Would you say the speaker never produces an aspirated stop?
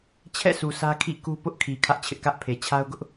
no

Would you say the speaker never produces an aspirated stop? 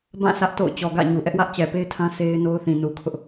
no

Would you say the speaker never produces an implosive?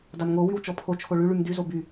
yes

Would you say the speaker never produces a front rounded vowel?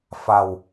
yes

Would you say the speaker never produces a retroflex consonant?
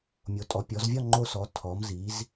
yes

